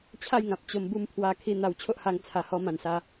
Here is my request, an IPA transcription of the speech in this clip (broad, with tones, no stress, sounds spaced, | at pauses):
t͡ɕʰ a˥˧ j ŋ ã˨ p̚ t͡ɕ o˧ m b u˥˧ m pʰ w a˧ kʰ i˧ n̪ a˧ w t͡ɕʰ o˦ ʔ h a˧ ŋ t͡sʰ a˨˩ h ɔ˧ m ã˨˩ n s a˧